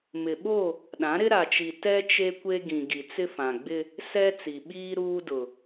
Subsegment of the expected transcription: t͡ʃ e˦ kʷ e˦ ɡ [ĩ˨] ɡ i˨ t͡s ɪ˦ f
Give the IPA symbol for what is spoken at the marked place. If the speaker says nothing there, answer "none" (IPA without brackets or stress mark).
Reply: ĩ˨